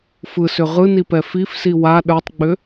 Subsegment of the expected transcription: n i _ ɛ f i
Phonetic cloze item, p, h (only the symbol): p